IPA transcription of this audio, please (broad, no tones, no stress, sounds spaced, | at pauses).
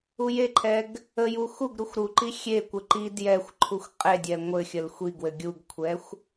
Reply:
u j e ǃʰ ɛ ɡ | ə j u x u ɡ ɾ u xʷ ɾ u ǃ i xʲ e kʷ ɘ ǃ i d j ɛ xʷ ǃʰ u xʷ qʼ e dʲ ɛ ŋʷ ɘ xʲ ə l xʷ i ɡ w ɘ ɡʲ u ɡ kʷʰ ɛ xʷ